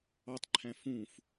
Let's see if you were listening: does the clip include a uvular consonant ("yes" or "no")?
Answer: no